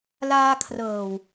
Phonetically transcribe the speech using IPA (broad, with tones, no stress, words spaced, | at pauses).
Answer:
laː˧kʰrɤː˨˩w